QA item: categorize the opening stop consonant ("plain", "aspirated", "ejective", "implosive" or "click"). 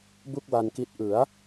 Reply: plain